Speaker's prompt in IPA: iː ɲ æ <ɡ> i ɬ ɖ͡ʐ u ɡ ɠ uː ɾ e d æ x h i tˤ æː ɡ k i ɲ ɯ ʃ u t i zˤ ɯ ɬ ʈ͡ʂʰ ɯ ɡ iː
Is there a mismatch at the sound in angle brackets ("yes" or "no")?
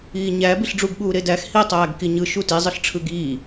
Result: yes